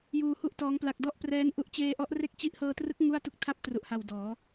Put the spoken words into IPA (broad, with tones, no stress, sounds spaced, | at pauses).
j uː˧ h u˥˩ ʔ t ɔː˦˥ ŋ p l a˨˩ k̚ d ɔ˥˩ ʔ p r ɛː˦˥ n ʔ u˦˥ ʔ t͡ɕ eː˧ ʔ ɔ˦˥ ʔ r e˥˩ k̚ t͡ɕ i˥˩ ʔ h ɤː˧ t r ɯ˦˥ k̚ ŋ u˥˩ a̯ t u˥˩ k̚ tʰ a˦˥ p̚ t r u˨˩ ʔ h a˨˩ w d ɔː˩˦